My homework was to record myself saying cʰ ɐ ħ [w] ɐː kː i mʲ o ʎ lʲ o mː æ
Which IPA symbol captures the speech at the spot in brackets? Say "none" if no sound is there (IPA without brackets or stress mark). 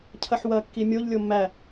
w